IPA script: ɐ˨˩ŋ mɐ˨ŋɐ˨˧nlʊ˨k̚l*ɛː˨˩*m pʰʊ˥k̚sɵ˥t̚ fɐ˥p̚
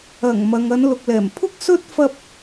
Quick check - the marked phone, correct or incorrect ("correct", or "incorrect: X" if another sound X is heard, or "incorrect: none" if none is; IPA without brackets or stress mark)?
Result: correct